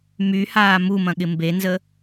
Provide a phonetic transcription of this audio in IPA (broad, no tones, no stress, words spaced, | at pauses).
myhaː mumɐ̃ɠɪ mbenzə